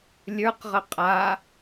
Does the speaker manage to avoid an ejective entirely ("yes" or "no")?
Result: no